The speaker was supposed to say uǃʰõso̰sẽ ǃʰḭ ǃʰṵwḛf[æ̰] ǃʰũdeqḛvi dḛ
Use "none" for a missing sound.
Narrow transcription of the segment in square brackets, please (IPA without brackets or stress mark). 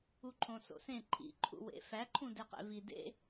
æ